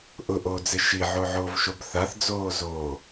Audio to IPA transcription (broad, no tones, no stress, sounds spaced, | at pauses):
ʔ ʊ ʔ oː d͡z ɪ ʃ i ʕ o ʕ oː v ʃ o b θ a θ d͡z oː z oː